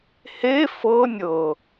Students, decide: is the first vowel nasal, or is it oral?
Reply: oral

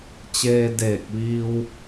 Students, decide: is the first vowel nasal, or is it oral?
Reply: oral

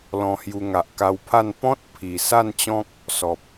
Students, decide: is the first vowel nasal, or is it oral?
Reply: nasal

